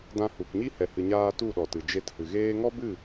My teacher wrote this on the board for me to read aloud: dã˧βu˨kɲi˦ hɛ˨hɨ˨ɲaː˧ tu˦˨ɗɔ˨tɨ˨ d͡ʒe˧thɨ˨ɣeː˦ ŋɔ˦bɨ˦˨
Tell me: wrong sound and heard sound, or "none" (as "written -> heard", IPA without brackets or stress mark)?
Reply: β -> h